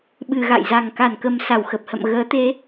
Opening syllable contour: low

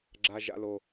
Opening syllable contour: high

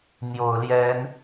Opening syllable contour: low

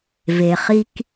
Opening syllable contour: low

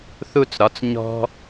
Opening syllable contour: falling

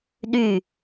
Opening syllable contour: falling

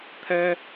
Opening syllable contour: high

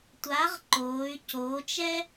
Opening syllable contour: rising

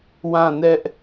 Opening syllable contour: falling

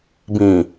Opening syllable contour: low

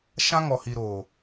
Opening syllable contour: high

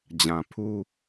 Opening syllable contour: low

